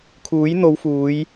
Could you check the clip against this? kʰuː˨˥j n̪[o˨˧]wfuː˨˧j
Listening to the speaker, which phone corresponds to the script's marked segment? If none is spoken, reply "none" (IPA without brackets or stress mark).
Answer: o˨˧